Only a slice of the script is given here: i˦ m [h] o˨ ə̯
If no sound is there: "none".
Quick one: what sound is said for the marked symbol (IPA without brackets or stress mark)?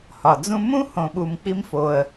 f